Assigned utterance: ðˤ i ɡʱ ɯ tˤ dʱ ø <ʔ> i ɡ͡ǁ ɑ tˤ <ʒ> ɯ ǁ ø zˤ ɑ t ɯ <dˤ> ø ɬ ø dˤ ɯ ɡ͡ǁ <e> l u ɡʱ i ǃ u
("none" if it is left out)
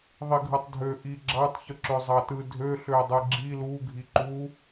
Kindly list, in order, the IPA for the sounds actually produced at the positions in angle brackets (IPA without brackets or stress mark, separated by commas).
ʔ, ç, dʱ, i